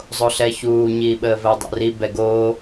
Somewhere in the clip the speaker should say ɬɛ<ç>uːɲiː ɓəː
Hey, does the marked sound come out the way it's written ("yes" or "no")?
yes